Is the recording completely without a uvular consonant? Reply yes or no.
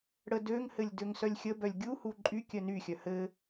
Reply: yes